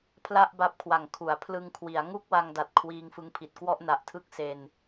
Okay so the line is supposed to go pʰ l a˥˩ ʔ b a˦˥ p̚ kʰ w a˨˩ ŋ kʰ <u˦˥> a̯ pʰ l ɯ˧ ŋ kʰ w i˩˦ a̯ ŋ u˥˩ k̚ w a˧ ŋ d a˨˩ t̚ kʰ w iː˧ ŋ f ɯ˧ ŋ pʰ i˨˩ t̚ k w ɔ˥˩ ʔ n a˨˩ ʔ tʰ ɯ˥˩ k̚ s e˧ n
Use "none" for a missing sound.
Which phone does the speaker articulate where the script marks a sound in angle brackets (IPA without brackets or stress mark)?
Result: u˩˦